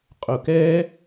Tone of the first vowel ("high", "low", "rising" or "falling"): low